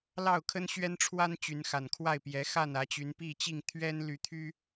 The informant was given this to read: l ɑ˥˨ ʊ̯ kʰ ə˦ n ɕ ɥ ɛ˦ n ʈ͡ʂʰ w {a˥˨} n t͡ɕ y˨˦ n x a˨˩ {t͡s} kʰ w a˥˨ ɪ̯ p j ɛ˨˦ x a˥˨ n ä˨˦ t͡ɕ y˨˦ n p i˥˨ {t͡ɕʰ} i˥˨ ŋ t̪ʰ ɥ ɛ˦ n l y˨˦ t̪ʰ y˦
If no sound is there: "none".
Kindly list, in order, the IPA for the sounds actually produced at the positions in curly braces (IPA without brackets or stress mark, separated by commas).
a˦, n, t͡ɕ